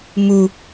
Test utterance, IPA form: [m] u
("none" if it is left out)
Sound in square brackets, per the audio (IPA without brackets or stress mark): m